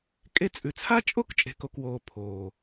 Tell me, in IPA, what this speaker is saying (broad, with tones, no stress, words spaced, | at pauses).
kʼe˦t͡sʼʉ˨ t͡sʰa˦t͡ʃʼo˦k t͡ʃʼe̤˨ko˨kwoː˨ pʰoː˨